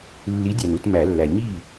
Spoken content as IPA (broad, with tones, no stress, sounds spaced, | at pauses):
lː i˨˥ dʲ æ˨ n u˥˩ t m æ˨˩˦ lː æ˨ ɲ i˥˩